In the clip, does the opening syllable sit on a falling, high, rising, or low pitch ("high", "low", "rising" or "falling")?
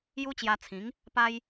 high